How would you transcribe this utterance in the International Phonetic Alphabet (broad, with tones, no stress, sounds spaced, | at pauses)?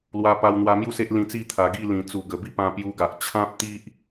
l w a˧ p a˧ w n̪ w a˧ m j u˥˧ s e˦ ʔ l ĩ˧ t͡s i˥˧ t̪ʰ a˨˩ ɡ i˥˧ l ĩ˨˩ t͡s u˨˩ ɡ ə˨˩ b i˦ p ã˧ p j u˧ ɡ a˨ ʔ t͡ɕʰ ã˦ p̚ t̪ i˦ ʔ